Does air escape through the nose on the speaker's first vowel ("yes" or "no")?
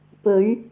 no